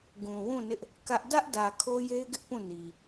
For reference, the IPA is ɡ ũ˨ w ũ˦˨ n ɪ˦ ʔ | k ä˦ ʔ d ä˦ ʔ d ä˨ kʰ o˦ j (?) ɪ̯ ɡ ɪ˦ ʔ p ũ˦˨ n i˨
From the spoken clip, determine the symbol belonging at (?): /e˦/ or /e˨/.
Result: e˦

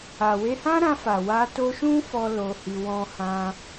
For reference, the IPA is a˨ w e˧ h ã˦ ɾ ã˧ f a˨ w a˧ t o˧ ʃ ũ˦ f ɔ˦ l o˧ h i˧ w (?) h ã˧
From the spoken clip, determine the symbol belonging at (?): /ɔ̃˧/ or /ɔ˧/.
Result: ɔ̃˧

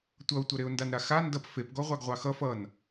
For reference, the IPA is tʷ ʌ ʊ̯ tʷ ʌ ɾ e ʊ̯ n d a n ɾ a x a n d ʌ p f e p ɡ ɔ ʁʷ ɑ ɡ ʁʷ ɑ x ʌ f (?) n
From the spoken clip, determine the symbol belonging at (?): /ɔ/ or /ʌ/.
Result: ʌ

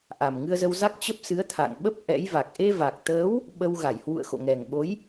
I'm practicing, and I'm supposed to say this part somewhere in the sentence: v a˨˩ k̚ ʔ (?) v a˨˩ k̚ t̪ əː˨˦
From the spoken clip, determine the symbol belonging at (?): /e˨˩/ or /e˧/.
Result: e˧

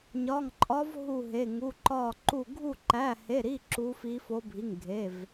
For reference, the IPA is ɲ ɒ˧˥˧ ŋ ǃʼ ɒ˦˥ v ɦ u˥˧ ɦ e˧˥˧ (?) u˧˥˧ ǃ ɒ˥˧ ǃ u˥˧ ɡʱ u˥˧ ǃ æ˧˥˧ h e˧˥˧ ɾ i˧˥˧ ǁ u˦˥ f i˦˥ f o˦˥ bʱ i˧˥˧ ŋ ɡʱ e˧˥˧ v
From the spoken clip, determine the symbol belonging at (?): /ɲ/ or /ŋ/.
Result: ŋ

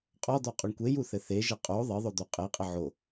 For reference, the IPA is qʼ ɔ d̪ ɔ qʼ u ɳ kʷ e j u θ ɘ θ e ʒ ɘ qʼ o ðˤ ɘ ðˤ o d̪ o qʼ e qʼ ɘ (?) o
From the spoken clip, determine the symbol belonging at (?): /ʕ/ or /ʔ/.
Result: ʕ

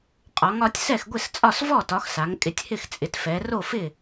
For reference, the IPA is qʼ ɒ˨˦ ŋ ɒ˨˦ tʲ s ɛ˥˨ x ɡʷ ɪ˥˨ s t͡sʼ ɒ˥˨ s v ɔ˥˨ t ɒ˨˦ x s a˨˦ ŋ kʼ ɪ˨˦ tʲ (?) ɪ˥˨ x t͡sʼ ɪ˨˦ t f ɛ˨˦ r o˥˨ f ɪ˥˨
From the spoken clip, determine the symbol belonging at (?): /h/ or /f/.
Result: h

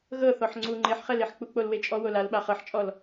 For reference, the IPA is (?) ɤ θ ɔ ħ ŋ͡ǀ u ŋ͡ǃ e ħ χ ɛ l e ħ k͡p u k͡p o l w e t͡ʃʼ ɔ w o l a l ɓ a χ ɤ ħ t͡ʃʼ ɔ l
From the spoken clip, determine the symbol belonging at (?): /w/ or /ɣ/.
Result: ɣ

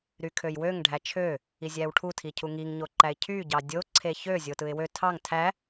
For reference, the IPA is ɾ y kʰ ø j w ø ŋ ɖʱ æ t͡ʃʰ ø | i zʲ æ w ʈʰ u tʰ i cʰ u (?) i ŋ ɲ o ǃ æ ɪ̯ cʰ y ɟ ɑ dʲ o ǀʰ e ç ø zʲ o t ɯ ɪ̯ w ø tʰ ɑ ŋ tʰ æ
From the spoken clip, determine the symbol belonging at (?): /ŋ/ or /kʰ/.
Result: ŋ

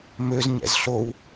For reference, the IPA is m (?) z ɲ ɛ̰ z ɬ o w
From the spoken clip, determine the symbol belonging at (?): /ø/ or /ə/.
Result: ø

